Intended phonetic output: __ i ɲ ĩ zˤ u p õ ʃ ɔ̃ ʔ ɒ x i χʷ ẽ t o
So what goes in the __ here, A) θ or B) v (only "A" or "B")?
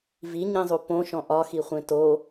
B